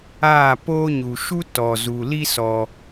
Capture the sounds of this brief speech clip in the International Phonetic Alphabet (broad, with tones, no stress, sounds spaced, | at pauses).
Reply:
aː˦˨ p oː˦ ɲ u˨ ʃ u˦ t ɔ˨ z u˨ l i˦ s ɔ˧